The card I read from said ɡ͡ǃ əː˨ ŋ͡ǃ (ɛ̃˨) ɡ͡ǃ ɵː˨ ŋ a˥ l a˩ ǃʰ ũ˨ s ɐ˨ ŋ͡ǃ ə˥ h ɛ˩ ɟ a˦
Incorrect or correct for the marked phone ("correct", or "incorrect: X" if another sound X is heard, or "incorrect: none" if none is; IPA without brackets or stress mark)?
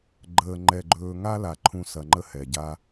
incorrect: ɛ˨